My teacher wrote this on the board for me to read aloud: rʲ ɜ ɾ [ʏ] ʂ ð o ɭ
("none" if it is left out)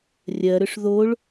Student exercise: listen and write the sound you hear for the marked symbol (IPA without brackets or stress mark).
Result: ʏ